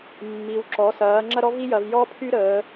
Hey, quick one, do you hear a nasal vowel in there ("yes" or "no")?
no